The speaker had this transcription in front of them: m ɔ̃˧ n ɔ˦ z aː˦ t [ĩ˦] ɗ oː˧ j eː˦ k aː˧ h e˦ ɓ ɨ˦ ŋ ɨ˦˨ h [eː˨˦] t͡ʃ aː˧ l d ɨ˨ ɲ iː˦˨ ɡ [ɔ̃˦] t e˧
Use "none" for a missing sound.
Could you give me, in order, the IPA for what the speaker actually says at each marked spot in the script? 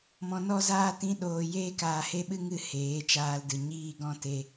ĩ˦, eː˨˦, ɔ̃˦

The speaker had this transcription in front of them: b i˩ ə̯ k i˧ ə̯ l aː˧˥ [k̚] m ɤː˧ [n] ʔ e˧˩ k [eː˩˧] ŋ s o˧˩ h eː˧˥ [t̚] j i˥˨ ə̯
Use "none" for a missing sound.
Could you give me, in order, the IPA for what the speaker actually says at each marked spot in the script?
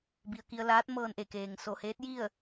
t̚, n, eː˩, t̚

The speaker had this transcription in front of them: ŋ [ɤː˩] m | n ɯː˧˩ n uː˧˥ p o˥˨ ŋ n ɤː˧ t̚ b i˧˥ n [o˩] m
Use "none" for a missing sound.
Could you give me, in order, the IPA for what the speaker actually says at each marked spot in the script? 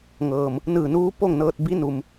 ɤː˩, u˩

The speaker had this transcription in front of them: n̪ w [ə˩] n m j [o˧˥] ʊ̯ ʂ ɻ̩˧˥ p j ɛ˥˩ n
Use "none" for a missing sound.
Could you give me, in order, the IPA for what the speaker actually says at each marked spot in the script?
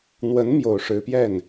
ə˧˥, o˨˩

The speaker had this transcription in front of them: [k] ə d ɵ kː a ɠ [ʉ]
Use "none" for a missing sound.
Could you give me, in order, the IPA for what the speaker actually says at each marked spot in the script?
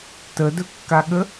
t, ə

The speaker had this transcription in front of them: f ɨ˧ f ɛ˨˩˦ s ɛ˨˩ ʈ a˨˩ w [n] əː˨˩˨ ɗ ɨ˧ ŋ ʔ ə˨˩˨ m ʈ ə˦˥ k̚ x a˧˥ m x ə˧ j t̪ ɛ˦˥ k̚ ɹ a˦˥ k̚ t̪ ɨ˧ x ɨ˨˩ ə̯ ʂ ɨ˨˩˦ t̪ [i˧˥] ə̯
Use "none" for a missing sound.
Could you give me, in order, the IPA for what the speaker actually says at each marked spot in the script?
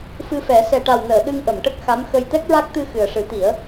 n, i˨˩˦

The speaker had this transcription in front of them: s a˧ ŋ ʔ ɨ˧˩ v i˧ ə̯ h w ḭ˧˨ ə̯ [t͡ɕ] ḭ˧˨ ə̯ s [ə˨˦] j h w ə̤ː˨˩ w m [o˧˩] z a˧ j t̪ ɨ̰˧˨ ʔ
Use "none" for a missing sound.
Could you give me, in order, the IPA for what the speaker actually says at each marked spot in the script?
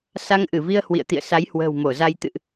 t̪, a˨˦, o˧˩

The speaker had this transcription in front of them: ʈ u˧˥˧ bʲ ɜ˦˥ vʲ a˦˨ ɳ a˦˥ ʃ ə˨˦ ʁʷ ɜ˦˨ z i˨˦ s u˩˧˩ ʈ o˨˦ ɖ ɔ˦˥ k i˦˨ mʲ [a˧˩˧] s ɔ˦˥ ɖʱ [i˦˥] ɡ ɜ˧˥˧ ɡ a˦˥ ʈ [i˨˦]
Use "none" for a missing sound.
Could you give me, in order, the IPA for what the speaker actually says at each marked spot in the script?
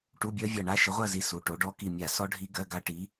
a˧˩˧, i˦˥, i˨˦

